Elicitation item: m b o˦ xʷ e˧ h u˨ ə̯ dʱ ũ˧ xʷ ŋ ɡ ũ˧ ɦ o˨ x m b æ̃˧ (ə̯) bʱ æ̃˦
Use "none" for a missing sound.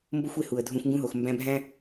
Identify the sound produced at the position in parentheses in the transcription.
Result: none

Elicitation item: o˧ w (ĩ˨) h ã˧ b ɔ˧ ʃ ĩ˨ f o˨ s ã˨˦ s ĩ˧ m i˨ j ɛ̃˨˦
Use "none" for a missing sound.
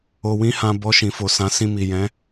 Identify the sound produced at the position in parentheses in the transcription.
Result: ĩ˦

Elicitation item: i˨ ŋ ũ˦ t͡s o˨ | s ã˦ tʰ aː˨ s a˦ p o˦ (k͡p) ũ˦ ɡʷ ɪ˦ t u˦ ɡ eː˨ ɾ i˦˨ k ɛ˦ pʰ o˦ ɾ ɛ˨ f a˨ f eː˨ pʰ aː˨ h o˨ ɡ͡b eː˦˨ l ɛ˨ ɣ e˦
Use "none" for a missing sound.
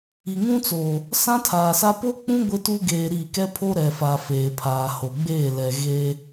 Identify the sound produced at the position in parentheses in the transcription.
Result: k͡p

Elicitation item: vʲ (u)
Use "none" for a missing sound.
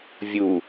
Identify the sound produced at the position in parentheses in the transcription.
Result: u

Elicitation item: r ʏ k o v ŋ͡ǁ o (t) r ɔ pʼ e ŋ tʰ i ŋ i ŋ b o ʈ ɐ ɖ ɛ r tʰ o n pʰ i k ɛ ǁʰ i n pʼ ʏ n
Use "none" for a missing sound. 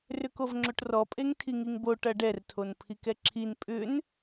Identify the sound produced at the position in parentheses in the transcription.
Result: ʈ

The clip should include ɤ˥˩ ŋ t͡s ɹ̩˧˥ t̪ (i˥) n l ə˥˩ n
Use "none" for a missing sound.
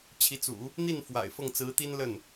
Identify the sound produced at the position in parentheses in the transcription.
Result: i˥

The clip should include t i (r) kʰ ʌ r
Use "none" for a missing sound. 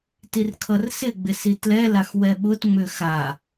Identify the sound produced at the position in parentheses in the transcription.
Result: r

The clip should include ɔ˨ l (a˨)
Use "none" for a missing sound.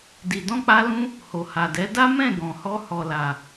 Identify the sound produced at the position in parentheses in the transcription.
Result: a˨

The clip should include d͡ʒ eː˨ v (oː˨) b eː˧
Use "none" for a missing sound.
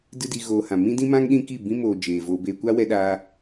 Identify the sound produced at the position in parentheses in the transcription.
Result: oː˧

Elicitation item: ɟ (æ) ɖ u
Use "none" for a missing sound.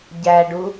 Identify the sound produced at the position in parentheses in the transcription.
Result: æ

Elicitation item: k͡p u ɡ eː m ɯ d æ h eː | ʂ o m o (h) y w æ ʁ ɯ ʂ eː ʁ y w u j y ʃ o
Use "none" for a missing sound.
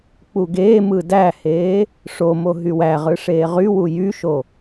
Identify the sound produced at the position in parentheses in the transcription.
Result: ɦ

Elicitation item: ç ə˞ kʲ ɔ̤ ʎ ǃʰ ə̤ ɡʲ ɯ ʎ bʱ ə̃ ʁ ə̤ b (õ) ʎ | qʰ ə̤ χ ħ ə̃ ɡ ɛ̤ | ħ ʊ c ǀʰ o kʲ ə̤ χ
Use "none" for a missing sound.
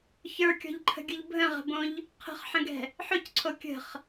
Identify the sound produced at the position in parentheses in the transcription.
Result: õ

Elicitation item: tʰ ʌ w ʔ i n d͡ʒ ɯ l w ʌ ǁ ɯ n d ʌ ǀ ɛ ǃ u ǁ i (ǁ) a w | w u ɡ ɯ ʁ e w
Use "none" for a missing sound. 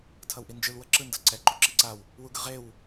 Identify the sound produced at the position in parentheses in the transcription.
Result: ǀ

